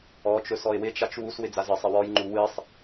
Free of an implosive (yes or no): yes